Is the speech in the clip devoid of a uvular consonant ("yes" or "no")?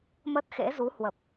yes